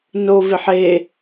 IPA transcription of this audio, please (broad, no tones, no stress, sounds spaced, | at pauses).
n o v ɪ ħ e